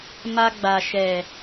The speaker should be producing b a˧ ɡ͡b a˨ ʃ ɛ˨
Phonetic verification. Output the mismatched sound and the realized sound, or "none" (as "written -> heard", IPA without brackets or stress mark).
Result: b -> m